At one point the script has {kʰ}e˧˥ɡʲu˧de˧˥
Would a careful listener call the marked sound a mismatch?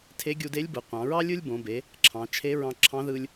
yes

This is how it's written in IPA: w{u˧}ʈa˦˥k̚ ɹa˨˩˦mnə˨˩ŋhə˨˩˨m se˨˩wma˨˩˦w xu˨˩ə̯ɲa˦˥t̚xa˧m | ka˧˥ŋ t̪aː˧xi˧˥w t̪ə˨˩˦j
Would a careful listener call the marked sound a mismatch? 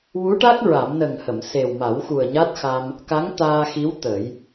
yes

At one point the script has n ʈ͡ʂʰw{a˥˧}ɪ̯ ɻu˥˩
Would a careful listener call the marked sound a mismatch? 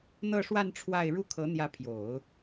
no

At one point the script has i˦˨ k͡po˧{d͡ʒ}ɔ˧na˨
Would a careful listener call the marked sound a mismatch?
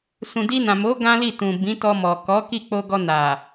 yes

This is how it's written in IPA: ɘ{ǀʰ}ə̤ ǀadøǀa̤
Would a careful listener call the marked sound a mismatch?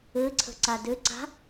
no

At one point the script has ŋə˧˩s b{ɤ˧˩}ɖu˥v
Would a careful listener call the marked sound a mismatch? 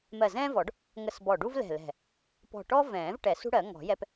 yes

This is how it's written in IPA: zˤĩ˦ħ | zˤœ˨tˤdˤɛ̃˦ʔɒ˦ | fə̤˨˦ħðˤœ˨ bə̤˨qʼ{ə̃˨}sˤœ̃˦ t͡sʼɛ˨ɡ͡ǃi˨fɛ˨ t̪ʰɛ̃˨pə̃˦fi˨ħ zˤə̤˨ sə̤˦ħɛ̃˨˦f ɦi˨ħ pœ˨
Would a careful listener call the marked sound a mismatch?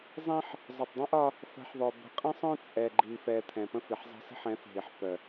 yes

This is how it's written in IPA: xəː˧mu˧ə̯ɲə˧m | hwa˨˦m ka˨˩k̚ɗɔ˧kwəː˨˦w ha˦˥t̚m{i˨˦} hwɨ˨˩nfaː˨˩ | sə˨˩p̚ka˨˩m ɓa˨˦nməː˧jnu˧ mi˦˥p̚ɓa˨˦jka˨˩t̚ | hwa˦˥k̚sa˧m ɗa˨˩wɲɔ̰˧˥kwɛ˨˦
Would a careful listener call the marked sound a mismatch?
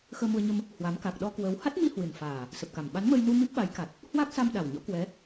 yes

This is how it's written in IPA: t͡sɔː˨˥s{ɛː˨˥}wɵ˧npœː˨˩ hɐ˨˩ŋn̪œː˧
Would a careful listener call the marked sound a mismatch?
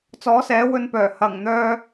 no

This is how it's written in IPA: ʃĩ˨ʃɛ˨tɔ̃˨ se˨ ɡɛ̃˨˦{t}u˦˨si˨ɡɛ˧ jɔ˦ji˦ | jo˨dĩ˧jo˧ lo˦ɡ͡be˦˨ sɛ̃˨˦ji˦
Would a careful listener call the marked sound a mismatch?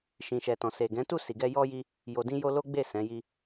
no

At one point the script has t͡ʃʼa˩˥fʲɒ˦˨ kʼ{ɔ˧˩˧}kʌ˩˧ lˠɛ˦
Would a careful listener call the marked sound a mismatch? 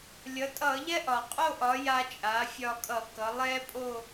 yes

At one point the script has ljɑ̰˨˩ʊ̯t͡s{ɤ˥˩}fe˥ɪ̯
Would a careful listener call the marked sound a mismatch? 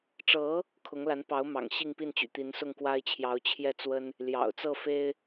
no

